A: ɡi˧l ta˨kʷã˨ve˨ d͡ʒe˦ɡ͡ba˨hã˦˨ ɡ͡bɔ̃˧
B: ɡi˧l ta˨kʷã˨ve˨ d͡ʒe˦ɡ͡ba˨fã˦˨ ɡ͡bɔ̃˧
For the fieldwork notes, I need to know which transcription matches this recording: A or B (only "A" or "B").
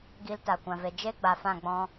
B